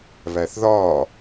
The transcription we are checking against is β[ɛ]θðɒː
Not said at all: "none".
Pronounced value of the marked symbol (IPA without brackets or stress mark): æ